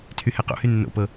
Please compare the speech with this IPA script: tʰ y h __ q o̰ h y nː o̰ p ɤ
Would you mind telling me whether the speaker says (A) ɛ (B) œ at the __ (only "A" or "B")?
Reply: A